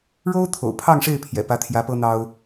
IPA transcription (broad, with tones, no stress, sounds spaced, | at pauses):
ɻ o˥ ʊ̯ t̪ʰ o̰˨˩ ʊ̯ pʰ ɑ˥˧ ŋ ʂ e˥˩ ɪ̯ pʰ j ɛ̰˨˩ p ä˧˥ t̪ʰ j ä˧˥ p ɤ˥ n̪ ɑ˥ ʊ̯